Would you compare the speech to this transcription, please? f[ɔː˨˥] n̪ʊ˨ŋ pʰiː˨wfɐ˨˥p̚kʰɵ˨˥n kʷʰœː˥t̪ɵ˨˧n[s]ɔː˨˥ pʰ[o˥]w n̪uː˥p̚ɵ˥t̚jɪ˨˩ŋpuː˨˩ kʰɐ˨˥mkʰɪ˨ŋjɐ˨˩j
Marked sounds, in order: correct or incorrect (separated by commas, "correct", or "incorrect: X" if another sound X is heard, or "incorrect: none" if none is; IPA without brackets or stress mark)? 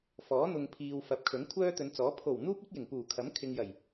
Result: correct, incorrect: t͡s, incorrect: o˨˩